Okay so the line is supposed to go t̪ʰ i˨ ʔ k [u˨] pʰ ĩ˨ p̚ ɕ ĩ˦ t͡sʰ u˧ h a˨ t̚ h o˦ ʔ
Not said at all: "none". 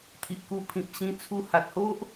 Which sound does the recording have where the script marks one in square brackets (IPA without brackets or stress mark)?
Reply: u˧